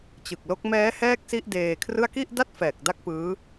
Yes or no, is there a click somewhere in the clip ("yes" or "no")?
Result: no